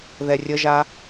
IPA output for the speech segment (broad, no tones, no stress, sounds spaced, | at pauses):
ð ɛ rʲ ə ʒ a